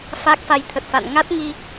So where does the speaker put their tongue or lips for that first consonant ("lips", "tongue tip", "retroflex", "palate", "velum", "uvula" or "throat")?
lips